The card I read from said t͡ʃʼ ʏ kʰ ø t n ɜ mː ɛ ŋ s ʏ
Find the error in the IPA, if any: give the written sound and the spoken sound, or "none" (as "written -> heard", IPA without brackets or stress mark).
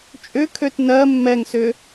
none